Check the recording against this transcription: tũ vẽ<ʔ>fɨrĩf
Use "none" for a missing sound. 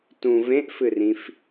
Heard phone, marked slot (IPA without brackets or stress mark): ʔ